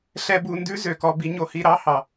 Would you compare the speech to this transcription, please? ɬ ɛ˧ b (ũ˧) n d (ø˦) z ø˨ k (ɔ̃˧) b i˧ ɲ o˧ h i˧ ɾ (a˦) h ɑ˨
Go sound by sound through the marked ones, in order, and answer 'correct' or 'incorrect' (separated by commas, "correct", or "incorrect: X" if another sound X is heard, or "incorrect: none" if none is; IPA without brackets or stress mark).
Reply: incorrect: u˧, incorrect: ʉ˦, incorrect: ɔ˧, incorrect: ɑ˦